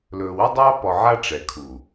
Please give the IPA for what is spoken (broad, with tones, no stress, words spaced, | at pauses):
lɵː˨wɵ˦dˤɑː˦ pɔ˨ʕa˦ ʈ͡ʂɛ˨kʰu˨